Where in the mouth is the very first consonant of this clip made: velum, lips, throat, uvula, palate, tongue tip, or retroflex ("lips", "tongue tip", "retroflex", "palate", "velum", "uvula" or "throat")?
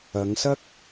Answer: velum